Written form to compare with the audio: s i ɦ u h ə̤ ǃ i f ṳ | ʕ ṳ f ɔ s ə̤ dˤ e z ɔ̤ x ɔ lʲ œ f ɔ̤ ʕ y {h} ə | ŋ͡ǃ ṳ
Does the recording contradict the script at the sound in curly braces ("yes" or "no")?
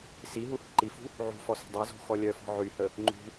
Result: no